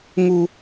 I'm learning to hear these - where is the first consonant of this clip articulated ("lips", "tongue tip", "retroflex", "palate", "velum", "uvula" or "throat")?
velum